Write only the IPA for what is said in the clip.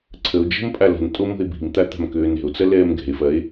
ǀʰ ə o̯ d͡ʒ ə̤ m pʼ a l ə̤ n tʼ o m o̤ e̯ b i̤ m t̪ a t̪ a̤ m k øː n ɛ̤ o̯ t͡s ɐ l ɛː m ɡ ɛ̤ e̯ f ɐ e̯

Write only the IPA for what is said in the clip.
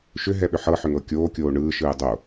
ʃ ʏ ɦ ɛ ɓ ʏ ħ ɤ ħ ʏ ŋ ɤ kʲ oː kʲ oː ɳ ɯː ʃ ɯː dˤ o

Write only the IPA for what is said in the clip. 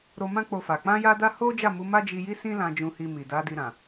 ɾ o˧ m ã˦ k͡p o˧ f a˨ k͡p ã˧ j a˧ d a˧ h o˦ d͡ʒ a˦˨ m u˨˦ m a˦ d͡ʒ i˧ j i˦ s ĩ˦ l ã˧ d͡ʒ ũ˧ h i˧ m i˨ d a˨˦ d i˧ ɾ ã˨

